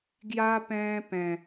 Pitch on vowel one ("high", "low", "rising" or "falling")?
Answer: high